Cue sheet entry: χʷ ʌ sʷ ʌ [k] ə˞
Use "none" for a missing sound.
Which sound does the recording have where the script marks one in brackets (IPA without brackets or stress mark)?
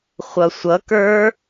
k